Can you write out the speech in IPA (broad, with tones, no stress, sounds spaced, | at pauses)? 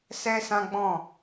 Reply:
s ɛ˦ s ã˦ ɡ͡b ɔ̃˦˨